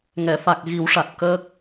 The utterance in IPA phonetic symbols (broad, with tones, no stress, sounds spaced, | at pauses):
ŋ ɛ˨˩˨ f a˨˩ k̚ ɣ i˨˩˦ w ʂ a˨˩ t̚ k əː˦˥ k̚